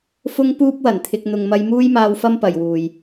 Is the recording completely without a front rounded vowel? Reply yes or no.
yes